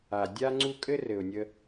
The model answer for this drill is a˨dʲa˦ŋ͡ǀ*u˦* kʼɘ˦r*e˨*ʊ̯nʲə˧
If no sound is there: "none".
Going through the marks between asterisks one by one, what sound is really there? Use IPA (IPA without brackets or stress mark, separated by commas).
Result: u˦, ɘ˨